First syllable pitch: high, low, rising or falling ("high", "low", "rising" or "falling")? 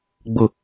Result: low